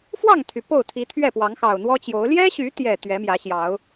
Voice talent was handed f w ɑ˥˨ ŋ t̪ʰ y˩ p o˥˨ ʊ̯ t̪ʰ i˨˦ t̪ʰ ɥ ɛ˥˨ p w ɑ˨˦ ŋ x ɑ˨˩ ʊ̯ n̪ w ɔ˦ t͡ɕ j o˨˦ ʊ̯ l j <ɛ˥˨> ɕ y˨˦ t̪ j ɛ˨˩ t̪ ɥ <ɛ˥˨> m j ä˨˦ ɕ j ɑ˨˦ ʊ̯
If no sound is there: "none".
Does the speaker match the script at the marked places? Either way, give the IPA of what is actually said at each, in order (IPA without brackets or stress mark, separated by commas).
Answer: ɛ˦, ɛ˨˦